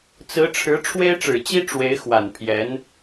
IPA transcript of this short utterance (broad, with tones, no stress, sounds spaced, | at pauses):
t͡s ɹ̩˧˥ ʈ͡ʂʰ ɻ̩˧˥ ʈ͡ʂʰ w e˥ ɪ̯ ʈ͡ʂ ɻ̩˨˩ t͡ɕ i˥ ʈ͡ʂ w e˧˥ ɪ̯ x w a˨˩ n pʰ j ɛ˧˥ n